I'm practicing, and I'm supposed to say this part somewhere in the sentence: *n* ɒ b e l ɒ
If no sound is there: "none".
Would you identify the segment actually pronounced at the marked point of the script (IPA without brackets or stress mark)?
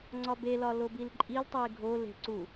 ŋ͡ǀ